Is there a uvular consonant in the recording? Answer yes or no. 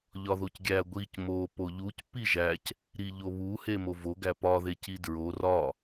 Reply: no